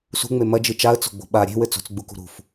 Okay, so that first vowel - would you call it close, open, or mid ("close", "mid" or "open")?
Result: close